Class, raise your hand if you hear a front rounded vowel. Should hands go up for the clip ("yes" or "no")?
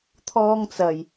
no